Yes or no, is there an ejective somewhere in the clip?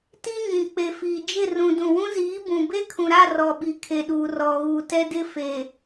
no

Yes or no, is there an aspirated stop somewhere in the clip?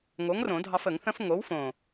no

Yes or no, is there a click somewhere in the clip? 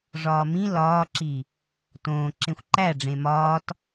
yes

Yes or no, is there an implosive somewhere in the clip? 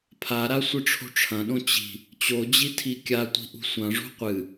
yes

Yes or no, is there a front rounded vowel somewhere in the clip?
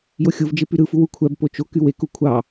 yes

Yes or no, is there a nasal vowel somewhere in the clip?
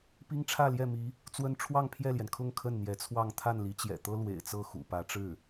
no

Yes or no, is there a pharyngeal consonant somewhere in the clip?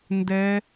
no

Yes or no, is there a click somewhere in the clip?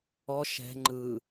yes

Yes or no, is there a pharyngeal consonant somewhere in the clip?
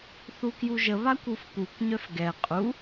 no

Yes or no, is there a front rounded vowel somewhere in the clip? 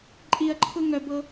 yes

